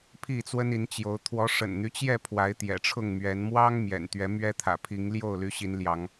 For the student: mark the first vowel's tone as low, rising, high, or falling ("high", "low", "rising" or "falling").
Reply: falling